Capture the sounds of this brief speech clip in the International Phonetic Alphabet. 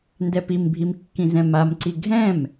ndɛpimbʱim kːĩzɛ̃mamǀi ɡʱɛ̃m

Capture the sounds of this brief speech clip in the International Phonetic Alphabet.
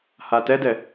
hatɛdɛ

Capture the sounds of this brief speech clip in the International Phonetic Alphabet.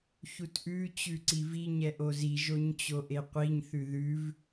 çutʔʉ t͡ɕʉǀivi ɲɛʔozi ʒoɲt͡ɕoʔeqʷiɲ θʉðʉv

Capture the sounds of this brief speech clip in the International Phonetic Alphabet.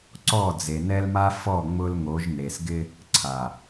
ǀɔ˦˨d͡ze˨ nɛ˦lma˦fɔ˦˨ ŋ͡mʊ˦lŋo˨˦ʒ ne˨sɡɪ˦ | ǀʰa˨

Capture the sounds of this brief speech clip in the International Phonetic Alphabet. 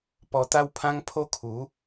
pɔ˧t̪a˦wpʰã˦ŋ pʰo˦kʰu˨˦

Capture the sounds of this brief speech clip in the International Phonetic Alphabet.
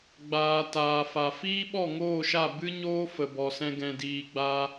ɡ͡baː˨ taː˨fa˨ fiː˦ɓɔ˦˨ŋoː˦˨ʃa˦˨ bɨ˦ɲoː˦ fə˧bɔ˧sɛ̃˦ ɡɛ̃˧diː˧ɡ͡ba˦

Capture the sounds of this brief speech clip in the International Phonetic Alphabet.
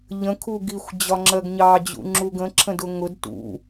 ʎə̃ kʰuɡixʷ d͡ʑɒŋ͡ǁɜɡɲɑ d͡ʑṵŋ͡ǁuɡə̃ ǁʰə̃dʊŋʊd tṵ

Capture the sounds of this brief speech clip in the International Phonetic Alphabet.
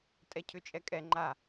tʼɛcʰʏt͡ʃʼɛkʼɛ ŋ͡ǃa

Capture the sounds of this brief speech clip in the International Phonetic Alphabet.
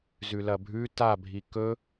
zʉlɐbʱʉ ta bʱikɵ

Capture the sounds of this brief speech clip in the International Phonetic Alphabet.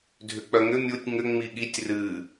dʱʏk͡pœŋʏ mʲutʲ ŋʏ ŋ͡miɠitʲ rɨ

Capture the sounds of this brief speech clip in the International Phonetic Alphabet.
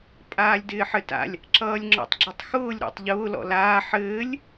pʼaːlʲdɪːħɘta̰lʲ | ǁʌːlʲŋ͡ǁɔ̰tˤɡ͡ǁetˤxʊːlʲ ɾo̰tˤʎʊː lɔ̰laː ħɘːlʲ

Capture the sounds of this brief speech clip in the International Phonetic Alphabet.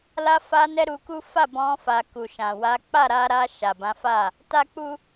la˧fa˧nɛ˧ ɾu˧ku˦ fa˦˨bɔ̃˧ fa˨ku˨ ʃã˨wa˨˦ k͡pa˦˨ɾa˧ɾa˧ ʃa˨bã˨˦fa˦˨ | ta˦k͡pu˦

